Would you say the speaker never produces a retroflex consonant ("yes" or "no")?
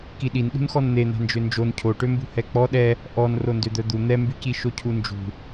no